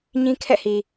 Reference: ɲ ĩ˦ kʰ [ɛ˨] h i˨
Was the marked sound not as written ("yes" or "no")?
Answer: yes